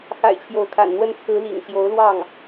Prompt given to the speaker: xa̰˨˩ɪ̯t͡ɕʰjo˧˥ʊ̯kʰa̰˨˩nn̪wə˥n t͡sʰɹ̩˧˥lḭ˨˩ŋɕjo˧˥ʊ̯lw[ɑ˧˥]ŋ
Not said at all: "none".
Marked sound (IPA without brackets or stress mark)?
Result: ɑ˥˩